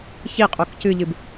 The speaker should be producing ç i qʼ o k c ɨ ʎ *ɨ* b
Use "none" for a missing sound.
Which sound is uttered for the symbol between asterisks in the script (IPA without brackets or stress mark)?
ɨ